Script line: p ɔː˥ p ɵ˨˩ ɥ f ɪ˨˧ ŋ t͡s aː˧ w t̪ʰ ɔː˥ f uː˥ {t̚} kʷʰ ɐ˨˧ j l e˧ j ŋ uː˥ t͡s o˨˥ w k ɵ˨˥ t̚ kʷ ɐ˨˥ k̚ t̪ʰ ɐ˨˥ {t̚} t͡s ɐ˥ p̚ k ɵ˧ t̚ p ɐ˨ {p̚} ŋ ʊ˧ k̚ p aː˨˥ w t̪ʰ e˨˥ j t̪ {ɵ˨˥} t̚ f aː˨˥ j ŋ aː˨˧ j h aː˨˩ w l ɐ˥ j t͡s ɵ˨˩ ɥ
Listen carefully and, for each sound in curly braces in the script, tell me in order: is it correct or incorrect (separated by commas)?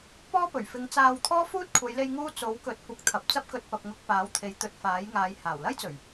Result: correct, incorrect, correct, correct